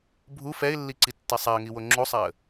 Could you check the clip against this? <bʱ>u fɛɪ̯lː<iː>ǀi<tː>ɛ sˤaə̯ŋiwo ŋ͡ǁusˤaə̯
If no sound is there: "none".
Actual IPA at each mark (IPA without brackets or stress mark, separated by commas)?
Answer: bʱ, i, tː